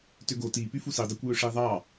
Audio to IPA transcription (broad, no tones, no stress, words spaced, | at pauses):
tøɡo tipy fusidˤækʷjø ʂiðˤɑ